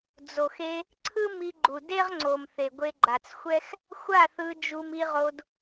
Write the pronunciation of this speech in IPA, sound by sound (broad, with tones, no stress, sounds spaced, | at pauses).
d͡z o˨ x e˧ | ǀʰ ɯ˦ m i˧ ɡ͡ǃ u˨ d e˦ ʁ ŋ͡ǀ o˨ m θ e˨ ɡʷ e˧ ɡ͡ǃ a˨ t͡s xʷ ɛ˦ x | xʷ a˦˨ θ ɯ˧ d͡ʒ u˧ m i˧ ʁ o˧ d